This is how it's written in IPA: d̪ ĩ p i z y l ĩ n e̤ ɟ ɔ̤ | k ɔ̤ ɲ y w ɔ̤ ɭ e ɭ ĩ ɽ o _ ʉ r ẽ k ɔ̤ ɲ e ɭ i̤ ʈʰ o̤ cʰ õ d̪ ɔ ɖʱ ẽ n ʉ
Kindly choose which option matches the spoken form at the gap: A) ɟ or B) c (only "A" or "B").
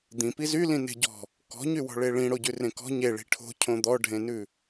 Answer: A